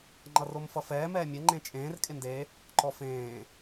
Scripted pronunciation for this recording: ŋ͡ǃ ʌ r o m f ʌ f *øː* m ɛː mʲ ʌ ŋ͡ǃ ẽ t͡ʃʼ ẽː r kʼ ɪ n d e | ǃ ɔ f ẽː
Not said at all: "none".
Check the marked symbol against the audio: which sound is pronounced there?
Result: ɛː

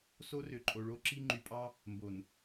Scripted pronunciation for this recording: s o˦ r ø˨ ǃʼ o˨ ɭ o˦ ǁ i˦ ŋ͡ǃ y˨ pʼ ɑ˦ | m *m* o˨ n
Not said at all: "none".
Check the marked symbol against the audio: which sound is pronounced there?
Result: b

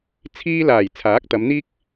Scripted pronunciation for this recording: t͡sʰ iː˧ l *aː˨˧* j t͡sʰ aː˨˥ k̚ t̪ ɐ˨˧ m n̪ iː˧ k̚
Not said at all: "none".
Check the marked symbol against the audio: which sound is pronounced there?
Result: aː˨˩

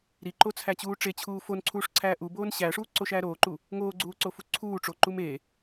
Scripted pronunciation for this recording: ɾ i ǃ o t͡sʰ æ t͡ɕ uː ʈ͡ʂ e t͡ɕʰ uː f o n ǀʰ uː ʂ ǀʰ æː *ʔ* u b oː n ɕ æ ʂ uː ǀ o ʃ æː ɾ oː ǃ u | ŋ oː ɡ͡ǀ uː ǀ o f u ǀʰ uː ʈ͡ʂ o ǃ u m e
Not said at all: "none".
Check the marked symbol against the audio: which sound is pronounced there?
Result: ʔ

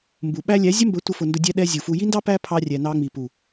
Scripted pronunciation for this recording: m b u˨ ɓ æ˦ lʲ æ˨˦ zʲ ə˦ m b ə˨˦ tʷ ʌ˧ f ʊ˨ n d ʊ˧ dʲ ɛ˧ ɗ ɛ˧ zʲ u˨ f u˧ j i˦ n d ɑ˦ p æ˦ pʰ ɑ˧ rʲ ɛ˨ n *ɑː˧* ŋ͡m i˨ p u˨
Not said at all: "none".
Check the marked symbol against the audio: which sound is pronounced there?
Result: ɑ˧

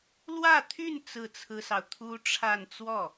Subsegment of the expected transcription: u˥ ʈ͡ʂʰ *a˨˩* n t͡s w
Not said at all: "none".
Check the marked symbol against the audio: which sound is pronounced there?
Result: a˥˧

